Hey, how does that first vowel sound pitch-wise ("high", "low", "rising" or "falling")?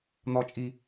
low